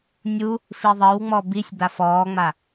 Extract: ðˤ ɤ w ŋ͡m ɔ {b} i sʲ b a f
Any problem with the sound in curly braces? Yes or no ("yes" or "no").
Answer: no